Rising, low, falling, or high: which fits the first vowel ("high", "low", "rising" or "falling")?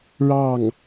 falling